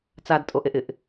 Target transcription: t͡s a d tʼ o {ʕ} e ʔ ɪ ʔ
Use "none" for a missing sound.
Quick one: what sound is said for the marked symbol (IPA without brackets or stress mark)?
ʔ